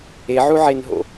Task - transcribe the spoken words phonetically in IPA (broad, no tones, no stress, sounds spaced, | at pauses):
e ʕ u ʕ e n ɦ o̰